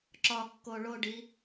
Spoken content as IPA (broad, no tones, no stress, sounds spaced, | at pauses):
ǁ ɒ kː o ɭ o ɖ i